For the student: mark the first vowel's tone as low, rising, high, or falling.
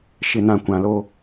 low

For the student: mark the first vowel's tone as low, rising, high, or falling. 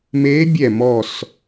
rising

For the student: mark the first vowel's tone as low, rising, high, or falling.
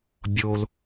low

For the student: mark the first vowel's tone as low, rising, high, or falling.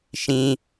high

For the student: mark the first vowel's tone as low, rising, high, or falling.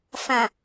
low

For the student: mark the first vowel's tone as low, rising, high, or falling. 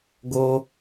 high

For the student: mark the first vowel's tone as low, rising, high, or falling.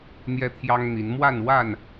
high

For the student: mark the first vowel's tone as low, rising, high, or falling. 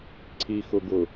low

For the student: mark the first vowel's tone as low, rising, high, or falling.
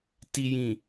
low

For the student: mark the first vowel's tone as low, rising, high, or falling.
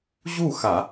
falling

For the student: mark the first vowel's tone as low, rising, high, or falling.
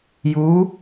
rising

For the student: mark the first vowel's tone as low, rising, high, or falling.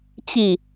falling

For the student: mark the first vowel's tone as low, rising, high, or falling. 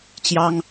high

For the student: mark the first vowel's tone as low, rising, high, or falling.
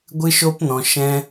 high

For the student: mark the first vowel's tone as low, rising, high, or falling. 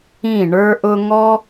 falling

